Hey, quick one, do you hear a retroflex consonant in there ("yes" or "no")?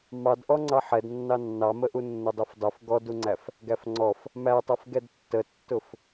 no